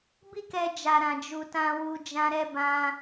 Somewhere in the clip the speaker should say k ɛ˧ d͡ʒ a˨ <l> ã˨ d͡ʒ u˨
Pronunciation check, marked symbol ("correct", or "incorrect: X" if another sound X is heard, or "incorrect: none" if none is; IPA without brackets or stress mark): incorrect: ɾ